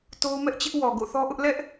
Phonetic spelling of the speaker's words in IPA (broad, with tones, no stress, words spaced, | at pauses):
to˦ʊ̯mɛ˦ʔt͡ɕɪ˦ʔ wɔ˨ ɡo̰˦˨θɔ˦ʔʊ˦ʔ lɛ˦ʔ